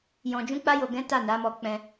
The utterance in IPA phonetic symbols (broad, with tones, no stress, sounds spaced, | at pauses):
j ɔ̃˧ d͡ʒ ũ˦ k͡p a˦ j o˧ ɡ ɛ̃˦ t a˦˨ n a˨˦ m ɔ˧ k͡p ɛ̃˦